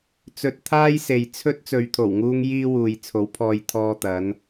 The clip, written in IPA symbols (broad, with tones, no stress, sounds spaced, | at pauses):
t͡s ɵ˧ t̚ t̪ʰ aː˥ j s e˨ j t͡sʰ ɵ˥ t̚ t͡s ɵ˨ ɥ t̪ʰ o˨˩ w ŋ uː˧ ŋ j iː˥ w uː˨ j t͡sʰ o˨˥ w pʰ ɔː˧ j t̪ʰ ɔː˥ t̪ ɐ˨˥ n